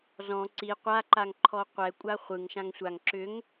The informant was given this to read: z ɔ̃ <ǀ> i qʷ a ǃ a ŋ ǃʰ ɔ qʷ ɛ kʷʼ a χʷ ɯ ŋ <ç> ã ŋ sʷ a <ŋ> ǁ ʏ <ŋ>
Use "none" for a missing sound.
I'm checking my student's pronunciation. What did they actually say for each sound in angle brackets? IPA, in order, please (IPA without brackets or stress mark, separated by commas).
ǀ, ʃ, ŋ, ŋ